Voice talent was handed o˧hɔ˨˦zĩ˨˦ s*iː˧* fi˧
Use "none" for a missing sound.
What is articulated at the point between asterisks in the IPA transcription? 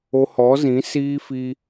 iː˧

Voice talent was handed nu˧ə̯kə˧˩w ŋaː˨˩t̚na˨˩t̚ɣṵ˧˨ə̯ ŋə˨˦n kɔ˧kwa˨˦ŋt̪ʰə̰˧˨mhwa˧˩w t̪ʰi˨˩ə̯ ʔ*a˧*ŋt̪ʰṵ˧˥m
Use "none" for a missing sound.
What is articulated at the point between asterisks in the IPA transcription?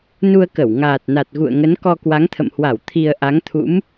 a˨˦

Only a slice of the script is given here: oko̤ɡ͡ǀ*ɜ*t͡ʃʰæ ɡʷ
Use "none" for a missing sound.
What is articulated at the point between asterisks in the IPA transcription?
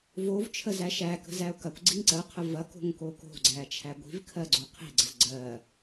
æ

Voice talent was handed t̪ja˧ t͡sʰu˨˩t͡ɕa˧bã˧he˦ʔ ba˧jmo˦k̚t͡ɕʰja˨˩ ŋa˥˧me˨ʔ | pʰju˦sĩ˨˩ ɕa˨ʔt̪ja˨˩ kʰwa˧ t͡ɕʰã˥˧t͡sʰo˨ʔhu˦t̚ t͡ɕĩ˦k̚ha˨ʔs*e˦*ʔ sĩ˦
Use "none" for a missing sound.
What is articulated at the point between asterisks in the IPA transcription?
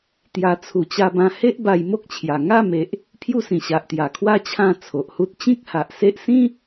e˦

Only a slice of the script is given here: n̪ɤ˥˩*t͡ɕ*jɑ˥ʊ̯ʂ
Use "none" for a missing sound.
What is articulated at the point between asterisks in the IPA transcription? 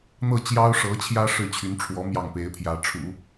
t͡ɕ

